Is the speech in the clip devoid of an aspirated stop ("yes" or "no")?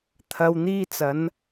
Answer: no